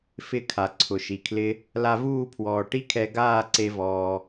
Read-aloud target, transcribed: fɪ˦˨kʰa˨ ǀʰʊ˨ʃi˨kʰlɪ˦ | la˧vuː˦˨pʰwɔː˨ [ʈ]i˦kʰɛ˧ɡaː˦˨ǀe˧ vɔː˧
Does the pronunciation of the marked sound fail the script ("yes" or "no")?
no